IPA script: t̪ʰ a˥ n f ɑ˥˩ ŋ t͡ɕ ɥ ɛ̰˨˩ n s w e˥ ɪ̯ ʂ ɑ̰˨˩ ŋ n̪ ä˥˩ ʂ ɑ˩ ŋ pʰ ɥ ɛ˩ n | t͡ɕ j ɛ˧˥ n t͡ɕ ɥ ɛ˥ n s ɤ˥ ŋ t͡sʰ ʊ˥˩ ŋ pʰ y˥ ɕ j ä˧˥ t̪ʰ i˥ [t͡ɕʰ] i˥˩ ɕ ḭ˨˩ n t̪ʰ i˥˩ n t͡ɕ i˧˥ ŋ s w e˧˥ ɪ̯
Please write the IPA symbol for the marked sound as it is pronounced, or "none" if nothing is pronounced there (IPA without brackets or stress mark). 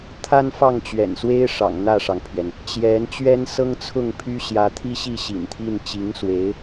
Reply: ɕ